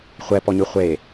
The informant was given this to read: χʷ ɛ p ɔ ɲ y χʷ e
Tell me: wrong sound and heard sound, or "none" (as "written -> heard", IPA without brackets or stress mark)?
none